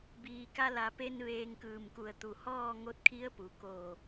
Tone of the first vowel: low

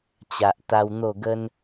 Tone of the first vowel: low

